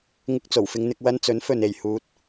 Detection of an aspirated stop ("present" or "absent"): absent